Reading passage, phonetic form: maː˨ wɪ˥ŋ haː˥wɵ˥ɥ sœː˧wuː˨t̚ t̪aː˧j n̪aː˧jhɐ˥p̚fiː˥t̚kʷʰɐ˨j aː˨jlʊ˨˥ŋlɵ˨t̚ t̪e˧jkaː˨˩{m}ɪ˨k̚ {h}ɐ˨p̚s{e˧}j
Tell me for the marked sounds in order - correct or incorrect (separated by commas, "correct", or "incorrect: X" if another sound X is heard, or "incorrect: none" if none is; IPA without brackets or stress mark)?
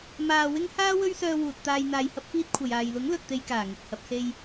incorrect: ŋ, correct, correct